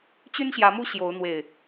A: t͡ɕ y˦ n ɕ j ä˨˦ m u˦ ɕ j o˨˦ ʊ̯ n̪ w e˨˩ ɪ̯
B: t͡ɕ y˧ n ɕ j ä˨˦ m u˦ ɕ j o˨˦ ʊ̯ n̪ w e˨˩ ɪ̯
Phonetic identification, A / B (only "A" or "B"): A